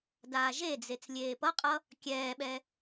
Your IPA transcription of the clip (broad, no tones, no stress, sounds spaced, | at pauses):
d aː ʒ e d͡z e t͡s lʲ eː p ʌ qʼ ʌ | kʲ ɛː ɓ ɛ